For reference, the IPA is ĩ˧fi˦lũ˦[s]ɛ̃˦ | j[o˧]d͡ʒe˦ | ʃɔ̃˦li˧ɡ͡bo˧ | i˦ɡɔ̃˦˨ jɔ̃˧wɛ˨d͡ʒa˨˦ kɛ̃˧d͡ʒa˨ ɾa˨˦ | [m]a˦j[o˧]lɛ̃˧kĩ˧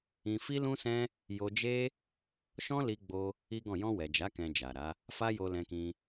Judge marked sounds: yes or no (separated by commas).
yes, yes, no, yes